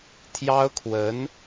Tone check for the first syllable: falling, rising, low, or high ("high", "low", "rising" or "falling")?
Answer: high